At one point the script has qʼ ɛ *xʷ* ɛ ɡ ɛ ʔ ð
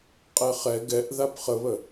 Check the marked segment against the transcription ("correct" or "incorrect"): incorrect